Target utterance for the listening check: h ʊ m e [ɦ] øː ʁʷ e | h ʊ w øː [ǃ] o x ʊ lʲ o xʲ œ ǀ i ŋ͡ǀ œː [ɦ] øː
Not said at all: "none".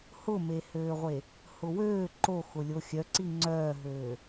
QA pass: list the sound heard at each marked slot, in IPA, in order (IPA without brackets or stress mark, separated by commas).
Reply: h, ǃ, ɦ